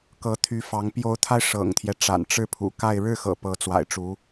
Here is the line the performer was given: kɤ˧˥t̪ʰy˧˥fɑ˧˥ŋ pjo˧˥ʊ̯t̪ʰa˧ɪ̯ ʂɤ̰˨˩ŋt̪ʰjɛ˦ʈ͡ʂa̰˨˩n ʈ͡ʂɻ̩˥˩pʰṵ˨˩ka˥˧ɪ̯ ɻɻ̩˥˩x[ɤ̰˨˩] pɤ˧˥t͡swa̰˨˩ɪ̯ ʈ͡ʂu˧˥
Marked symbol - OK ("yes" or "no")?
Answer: yes